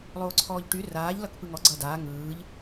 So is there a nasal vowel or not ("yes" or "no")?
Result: no